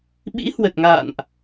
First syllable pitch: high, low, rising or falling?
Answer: rising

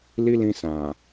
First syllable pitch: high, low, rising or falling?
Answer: high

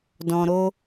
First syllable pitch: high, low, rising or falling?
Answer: low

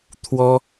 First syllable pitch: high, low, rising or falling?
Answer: high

